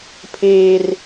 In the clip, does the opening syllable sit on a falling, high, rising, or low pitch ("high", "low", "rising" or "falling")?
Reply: low